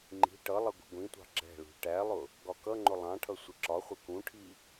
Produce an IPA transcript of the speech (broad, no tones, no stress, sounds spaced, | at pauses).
ŋ͡ǃ i̤ ʈ ʌ lˠ ʌ ɡʷ i̤ ɡʷ ĩ tʷ ɑ̤ ɡ͡ǁ ɛ̤ ɭ ṳ ʈ æ lˠ ʊ | ɡ ɒ k ʌ ŋ͡ǃ ʊ lˠ ɑ̃ ʈʰ ʌ sʷ ɪ ǁ ɒ χʷ ɪ k ũ ʈʰ i